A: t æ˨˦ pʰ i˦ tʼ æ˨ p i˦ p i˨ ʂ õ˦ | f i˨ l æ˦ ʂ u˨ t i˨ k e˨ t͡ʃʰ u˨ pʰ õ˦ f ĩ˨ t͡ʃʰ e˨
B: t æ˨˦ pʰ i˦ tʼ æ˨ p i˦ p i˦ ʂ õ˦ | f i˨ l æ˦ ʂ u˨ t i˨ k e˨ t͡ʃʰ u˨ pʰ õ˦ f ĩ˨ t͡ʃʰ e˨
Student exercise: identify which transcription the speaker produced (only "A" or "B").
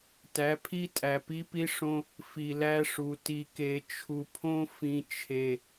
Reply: B